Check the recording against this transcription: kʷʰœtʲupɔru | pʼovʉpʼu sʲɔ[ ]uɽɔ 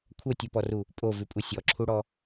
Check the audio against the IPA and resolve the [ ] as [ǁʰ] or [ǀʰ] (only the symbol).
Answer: ǁʰ